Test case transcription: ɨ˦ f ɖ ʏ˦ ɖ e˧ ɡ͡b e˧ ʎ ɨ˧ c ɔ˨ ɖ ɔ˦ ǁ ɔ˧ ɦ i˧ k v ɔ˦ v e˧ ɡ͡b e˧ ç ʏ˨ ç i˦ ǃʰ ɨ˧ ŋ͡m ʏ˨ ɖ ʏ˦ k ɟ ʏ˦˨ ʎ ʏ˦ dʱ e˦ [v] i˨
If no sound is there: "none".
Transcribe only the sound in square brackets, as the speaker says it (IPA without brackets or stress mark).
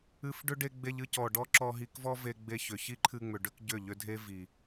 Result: v